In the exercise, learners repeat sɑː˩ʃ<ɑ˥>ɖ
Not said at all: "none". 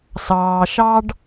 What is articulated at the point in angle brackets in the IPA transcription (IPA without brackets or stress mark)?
ɑ˥